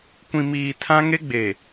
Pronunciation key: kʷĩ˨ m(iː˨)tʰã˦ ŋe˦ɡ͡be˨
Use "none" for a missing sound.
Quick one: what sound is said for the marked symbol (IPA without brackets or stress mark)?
iː˨